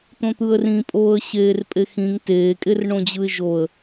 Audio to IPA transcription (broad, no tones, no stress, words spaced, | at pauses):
t̪õt̪ɯə̯rĩpʼoːə̯ ɕeːrpʼexĩŋ teːkʼerɳõd͡ʑɯɪ̯ ʒoə̯